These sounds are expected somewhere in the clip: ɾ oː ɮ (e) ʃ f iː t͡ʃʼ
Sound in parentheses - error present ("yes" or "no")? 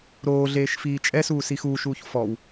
yes